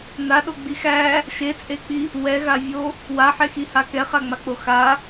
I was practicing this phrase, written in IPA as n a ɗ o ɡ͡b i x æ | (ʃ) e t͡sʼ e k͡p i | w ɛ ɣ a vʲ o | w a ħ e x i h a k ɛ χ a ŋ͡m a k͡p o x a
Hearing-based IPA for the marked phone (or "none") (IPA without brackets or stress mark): ʃ